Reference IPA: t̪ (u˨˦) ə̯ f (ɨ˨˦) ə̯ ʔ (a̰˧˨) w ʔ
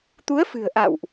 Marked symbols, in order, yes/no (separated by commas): yes, no, yes